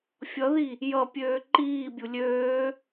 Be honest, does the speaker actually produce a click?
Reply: yes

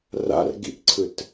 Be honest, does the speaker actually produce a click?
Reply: yes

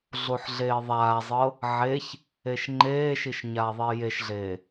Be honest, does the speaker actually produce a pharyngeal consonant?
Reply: yes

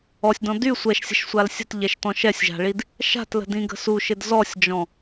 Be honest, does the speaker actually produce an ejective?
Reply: no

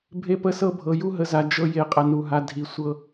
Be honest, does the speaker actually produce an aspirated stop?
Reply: no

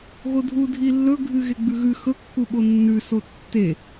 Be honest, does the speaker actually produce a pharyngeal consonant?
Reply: no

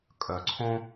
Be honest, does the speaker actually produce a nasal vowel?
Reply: yes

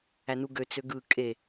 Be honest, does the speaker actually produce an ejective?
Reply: yes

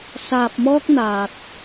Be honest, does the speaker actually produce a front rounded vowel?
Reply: no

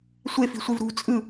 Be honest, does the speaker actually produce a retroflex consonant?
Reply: no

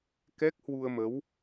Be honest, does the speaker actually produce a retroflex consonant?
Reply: no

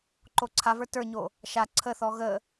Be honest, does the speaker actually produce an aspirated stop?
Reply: yes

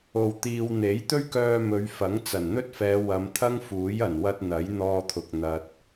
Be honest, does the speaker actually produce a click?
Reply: no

